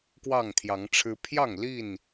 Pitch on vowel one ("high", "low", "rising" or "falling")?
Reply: falling